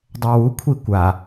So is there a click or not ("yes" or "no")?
no